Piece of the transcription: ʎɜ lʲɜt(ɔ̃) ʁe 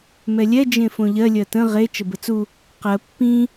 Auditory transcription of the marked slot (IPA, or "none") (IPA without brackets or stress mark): ə̃